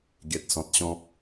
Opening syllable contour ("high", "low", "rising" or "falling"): low